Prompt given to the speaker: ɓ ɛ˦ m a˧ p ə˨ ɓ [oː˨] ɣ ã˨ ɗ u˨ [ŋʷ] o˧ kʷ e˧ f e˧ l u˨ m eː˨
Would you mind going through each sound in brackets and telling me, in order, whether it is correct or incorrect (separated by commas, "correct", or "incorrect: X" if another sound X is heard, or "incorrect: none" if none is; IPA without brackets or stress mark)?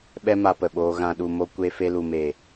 incorrect: oː˧, incorrect: m